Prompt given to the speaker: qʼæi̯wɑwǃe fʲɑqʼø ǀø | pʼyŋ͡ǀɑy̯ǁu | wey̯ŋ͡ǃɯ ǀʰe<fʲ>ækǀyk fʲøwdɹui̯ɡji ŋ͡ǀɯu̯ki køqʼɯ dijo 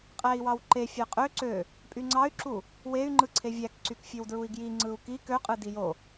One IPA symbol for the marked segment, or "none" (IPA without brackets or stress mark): vʲ